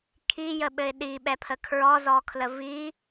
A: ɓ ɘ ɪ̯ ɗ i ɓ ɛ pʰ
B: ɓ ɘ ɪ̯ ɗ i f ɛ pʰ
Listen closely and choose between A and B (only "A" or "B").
A